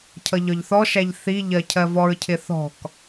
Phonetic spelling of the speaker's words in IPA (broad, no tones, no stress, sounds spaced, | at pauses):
cʰ ʌ ʎ ɒ ʎ θ ɔ ʃ æ ʎ θ i ʎ ɜ cʰ ɜ v ɔ ɹ cʰ ɪ θ ɔ̤ k